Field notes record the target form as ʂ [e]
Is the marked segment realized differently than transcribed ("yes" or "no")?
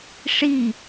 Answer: yes